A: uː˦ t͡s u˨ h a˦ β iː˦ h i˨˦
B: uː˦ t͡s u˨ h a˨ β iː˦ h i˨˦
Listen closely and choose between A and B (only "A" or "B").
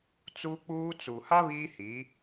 A